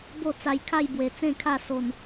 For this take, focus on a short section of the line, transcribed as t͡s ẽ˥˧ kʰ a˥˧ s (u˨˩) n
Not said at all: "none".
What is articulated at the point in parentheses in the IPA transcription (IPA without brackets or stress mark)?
o˨˩